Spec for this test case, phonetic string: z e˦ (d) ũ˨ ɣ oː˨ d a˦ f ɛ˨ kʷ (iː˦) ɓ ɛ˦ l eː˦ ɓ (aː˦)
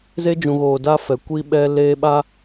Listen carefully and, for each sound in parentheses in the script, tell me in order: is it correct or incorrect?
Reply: incorrect, incorrect, incorrect

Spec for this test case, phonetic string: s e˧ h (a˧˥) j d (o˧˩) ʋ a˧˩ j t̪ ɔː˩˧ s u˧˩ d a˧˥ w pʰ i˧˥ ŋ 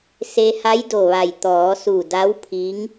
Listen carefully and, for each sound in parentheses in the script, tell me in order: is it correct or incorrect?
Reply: correct, correct

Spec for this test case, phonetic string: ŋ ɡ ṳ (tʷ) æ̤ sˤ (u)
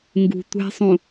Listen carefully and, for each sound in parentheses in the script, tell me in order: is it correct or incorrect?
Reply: correct, incorrect

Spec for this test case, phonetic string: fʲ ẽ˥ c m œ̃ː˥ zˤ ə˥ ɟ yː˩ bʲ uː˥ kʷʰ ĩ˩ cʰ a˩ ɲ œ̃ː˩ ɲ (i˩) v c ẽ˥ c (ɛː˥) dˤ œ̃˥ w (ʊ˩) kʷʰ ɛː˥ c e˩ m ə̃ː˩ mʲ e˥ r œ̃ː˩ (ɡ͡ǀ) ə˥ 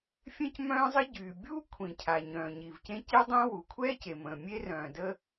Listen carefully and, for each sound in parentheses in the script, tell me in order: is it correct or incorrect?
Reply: correct, incorrect, incorrect, incorrect

